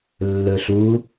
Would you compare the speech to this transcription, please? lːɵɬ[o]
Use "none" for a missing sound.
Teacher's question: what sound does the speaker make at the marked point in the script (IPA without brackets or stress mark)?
u